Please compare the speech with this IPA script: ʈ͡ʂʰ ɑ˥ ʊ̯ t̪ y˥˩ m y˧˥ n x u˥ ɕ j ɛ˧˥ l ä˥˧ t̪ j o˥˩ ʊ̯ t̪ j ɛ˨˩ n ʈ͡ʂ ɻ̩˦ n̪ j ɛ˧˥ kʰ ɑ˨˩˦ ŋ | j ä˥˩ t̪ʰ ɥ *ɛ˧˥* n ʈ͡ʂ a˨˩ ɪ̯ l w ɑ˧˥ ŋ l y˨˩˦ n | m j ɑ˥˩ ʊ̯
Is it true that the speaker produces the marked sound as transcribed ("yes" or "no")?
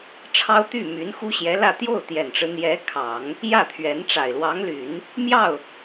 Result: yes